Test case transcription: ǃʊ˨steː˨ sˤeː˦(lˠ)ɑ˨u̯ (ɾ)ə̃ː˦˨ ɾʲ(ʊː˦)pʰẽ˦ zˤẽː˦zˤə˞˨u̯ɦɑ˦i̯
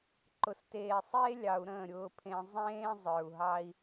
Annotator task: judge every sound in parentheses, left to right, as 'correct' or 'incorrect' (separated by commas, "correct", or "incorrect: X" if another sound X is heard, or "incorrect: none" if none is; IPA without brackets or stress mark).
incorrect: lʲ, correct, correct